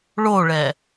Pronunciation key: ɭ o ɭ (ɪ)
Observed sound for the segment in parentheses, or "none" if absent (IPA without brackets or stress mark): ɛ